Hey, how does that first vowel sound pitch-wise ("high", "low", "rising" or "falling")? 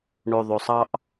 low